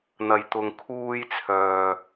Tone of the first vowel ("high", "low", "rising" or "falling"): low